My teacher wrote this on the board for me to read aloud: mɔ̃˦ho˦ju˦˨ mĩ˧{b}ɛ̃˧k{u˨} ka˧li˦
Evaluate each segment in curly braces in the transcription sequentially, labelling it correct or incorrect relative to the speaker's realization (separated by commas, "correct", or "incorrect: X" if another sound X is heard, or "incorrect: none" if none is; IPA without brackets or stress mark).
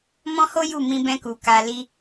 correct, correct